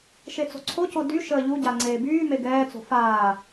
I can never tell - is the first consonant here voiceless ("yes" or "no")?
yes